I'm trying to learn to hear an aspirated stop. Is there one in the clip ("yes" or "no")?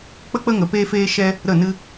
no